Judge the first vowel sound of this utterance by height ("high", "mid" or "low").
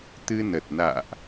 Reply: high